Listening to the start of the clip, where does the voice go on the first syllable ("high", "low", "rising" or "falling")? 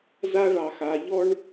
high